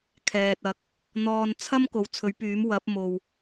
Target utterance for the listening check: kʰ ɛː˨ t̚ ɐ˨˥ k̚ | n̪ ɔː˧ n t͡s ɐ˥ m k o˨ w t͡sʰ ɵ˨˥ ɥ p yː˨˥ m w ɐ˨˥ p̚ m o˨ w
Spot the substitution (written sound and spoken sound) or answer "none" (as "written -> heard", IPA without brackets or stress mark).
t͡s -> t͡sʰ